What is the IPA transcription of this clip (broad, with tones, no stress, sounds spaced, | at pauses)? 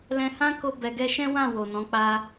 l ɛ̃˧ h ã˦ k o˧ b ɛ˨ ɡ ɛ˧ ʃ ɛ̃˦ w ã˦˨ w o˨ n ɔ̃˨˦ k͡p a˦